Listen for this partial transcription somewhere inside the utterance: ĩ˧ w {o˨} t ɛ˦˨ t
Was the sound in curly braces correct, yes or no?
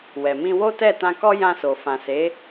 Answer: no